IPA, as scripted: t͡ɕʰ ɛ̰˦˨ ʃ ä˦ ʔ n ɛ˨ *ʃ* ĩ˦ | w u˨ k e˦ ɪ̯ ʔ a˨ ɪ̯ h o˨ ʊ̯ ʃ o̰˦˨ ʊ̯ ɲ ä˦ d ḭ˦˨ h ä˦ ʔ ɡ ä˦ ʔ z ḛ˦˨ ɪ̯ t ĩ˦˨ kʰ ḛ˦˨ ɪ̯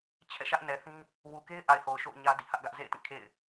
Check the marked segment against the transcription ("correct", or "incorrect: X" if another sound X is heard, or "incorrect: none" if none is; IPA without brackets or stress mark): incorrect: θ